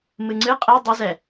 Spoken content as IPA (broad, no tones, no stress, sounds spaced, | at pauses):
m ɨ ŋ͡ǀ ɨ qʼ ɛ dˤ i z ɛ